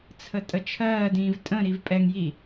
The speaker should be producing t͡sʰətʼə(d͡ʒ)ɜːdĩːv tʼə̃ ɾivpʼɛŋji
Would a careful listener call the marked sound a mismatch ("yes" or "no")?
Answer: yes